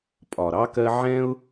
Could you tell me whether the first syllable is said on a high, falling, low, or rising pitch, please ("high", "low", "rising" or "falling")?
low